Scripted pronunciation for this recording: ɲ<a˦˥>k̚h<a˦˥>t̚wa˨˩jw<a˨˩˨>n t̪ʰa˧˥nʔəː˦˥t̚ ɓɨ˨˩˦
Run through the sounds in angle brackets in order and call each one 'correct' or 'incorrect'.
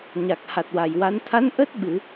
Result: incorrect: a˨˩, incorrect: a˨˩, incorrect: a˧˥

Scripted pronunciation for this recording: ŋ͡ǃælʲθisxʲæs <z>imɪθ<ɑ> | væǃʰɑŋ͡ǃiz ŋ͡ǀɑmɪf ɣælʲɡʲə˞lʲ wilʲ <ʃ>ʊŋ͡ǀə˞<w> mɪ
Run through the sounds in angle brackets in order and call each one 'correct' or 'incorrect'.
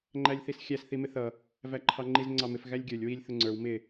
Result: incorrect: θ, incorrect: ʌ, incorrect: θ, correct

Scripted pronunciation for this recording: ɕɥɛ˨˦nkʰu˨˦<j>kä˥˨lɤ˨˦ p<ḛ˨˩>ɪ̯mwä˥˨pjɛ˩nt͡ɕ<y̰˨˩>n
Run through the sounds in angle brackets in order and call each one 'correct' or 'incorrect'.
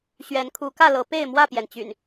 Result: incorrect: none, incorrect: e˥˨, correct

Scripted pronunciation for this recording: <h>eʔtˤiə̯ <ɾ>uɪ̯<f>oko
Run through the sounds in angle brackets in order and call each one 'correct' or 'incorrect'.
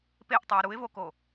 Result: incorrect: p, correct, incorrect: v

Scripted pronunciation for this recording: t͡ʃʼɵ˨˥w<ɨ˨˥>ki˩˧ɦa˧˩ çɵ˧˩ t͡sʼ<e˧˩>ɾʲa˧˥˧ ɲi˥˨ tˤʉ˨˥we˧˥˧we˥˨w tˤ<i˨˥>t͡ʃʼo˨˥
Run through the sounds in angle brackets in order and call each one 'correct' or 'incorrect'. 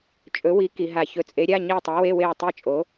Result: incorrect: i˨˥, incorrect: e˨˥, incorrect: i˥˨

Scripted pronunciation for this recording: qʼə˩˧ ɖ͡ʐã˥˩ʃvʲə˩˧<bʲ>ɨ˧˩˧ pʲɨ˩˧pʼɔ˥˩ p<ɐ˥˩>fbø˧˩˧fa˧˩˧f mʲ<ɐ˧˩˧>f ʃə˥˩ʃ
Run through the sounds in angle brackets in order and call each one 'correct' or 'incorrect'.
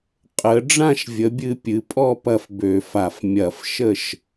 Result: correct, correct, correct

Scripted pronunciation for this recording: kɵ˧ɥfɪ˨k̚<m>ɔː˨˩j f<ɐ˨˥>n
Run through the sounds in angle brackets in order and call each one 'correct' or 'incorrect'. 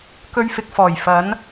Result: incorrect: f, correct

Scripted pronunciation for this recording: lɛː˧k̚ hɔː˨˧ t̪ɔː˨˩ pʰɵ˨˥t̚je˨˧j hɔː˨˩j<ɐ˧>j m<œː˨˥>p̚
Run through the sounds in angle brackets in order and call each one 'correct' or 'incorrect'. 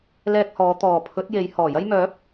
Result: incorrect: ɐ˥, correct

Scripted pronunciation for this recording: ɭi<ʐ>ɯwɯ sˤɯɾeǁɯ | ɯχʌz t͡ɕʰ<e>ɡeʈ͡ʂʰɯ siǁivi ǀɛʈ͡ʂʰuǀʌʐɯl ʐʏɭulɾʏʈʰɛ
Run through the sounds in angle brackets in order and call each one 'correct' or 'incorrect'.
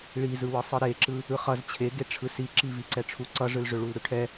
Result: incorrect: z, correct

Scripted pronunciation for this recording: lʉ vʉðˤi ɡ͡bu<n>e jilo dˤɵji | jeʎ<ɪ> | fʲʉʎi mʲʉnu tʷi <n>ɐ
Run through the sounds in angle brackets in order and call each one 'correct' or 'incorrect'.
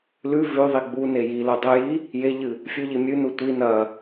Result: correct, incorrect: ɨ, correct

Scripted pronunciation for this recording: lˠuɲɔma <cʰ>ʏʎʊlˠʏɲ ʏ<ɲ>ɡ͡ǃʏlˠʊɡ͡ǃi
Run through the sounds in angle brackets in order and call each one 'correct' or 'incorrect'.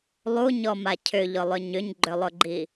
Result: correct, correct

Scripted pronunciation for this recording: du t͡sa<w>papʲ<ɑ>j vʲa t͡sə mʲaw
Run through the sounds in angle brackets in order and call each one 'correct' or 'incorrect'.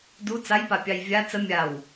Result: incorrect: j, correct

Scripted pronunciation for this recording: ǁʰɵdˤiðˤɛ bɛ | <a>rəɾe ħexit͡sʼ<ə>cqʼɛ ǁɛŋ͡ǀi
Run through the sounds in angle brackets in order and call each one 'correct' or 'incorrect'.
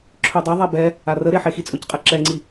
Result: correct, incorrect: ɵ

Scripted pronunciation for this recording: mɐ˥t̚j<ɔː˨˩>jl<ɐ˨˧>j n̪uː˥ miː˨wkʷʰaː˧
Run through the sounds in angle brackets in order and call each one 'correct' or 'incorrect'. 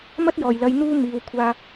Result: correct, correct

